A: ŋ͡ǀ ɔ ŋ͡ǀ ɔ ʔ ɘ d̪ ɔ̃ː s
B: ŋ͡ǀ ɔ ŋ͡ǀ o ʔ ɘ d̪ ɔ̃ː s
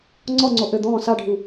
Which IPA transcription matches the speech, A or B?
B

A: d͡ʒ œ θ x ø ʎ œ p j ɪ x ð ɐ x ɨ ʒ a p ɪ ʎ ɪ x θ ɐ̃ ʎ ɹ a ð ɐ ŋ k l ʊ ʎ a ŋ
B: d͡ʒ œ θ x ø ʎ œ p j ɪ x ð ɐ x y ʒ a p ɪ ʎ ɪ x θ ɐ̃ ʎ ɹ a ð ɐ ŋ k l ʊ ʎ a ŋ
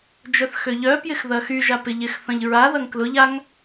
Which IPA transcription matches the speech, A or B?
B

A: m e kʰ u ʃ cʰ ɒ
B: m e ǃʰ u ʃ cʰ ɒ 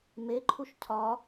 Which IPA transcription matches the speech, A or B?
B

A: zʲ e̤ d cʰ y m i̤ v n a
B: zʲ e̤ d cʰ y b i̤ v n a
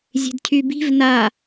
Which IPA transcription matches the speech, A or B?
B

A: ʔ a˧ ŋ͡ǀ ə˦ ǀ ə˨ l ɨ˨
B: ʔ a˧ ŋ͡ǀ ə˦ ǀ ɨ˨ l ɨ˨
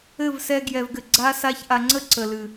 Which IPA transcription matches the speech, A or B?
A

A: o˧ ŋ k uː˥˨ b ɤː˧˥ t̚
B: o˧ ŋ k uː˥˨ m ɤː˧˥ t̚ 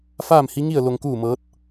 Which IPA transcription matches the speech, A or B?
B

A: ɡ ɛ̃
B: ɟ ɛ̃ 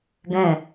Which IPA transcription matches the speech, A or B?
A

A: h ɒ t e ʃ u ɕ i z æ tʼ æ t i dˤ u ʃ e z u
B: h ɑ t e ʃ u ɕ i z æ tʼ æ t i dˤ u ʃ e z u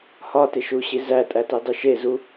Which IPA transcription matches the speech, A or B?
A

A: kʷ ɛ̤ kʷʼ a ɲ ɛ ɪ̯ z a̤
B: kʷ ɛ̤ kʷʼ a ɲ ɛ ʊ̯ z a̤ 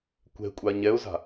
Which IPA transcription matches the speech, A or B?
B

